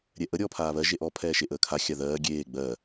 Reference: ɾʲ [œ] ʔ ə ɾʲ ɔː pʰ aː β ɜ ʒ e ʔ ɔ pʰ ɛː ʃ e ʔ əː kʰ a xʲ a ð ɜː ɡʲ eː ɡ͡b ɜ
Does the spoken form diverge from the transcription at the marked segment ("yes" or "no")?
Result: yes